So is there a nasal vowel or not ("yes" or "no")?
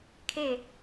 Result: no